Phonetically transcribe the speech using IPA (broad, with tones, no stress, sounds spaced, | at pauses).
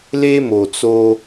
l e˦ m o˨˩ t͡s o˧